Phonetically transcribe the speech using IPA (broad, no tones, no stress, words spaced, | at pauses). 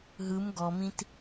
ɦɯm ɡɔmĩt